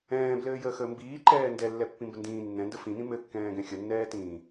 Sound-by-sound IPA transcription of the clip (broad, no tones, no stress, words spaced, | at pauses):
ɛ̃ːblɘːjəːxəː mbiːǃɛː ndɛlːɛpːĩmbə ndĩː nːɛ̃ndə fĩnĩ mɘkːɛ̃ːɡɛ̃ xʲənːɛːtĩː